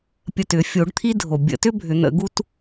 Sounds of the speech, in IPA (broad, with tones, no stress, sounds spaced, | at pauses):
pʲ ə˧˩ t ʏ˨˩˦ fʲ o˨˩˦ ɖ t̪ʰ i˥ dʱ o˩ bʲ ə̰˨˩˦ t ʏ˥ bʱ ʏ˨˩˦ n̪ ə̰˨˩˦ ɡ u˥ t